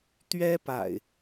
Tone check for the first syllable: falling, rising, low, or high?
high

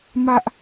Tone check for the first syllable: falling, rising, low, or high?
high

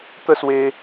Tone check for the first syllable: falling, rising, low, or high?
falling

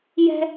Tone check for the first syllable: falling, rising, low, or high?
high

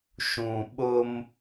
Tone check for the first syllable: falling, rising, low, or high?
low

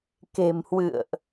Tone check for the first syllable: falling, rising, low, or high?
low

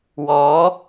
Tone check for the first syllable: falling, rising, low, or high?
rising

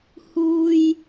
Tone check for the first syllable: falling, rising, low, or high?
high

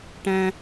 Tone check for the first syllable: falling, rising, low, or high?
high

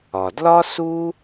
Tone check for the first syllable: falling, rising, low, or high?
low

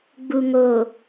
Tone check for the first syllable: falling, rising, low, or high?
low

